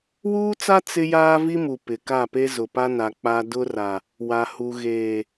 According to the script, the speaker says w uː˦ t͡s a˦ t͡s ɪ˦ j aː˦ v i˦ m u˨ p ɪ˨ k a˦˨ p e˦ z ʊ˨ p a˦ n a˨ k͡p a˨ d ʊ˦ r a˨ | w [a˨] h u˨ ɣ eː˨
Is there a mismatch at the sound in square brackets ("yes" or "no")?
no